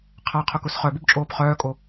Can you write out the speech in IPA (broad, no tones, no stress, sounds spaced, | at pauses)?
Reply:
qʰ a qʰ ʊ k ʊ s χ œ b u b t͡ʃʼ oː p χ œː kʼ o